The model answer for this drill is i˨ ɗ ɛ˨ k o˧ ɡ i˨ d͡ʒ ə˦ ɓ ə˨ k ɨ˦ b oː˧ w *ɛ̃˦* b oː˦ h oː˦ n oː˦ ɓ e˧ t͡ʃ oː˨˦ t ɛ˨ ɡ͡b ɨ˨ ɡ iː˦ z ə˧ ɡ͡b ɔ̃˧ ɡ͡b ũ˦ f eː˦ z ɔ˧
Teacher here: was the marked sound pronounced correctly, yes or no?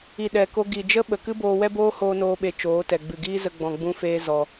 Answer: no